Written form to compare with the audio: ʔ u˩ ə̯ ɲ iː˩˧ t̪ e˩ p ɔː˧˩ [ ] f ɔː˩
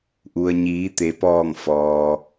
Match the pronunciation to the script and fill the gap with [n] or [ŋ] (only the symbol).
ŋ